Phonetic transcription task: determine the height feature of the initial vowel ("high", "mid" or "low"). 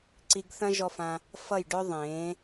high